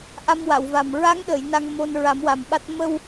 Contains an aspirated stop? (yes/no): no